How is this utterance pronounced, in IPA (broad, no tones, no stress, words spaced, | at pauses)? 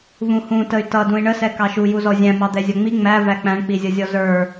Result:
vũhũ təy̯tʌ dũi̯ɳəsɛ kɑʃu juzɔzʲæ̃ mɑd̪ɛzʲʌŋ͡mi ŋ͡mævæ k͡pæ̃ɳk͡pizʲʌzʲɔ zə˞